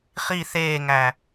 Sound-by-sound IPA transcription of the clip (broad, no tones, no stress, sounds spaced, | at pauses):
χ i θ eː ŋ æ